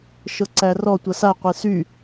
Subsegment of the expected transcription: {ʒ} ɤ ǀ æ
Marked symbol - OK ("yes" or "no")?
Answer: no